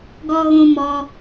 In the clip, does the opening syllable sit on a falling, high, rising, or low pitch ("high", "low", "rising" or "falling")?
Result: high